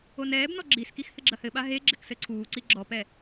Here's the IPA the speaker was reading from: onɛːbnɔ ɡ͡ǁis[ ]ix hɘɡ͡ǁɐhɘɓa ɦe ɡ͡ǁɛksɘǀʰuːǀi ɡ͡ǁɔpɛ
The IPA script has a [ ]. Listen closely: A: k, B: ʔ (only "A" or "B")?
A